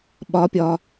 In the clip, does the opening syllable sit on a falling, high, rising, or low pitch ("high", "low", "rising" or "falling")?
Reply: rising